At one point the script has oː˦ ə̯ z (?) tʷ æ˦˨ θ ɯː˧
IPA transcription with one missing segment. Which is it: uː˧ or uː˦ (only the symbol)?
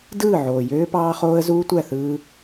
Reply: uː˦